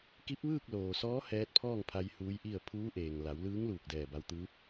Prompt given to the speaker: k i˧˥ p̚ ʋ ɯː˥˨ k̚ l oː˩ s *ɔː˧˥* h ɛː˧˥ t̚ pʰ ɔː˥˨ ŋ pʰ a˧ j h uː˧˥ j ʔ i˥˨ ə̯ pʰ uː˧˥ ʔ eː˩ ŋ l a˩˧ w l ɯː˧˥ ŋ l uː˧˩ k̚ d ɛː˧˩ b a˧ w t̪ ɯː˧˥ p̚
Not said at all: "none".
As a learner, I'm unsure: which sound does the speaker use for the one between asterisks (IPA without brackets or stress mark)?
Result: ɔː˧˥